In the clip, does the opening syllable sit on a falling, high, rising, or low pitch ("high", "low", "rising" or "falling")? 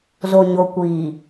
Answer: low